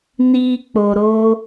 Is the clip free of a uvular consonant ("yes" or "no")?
yes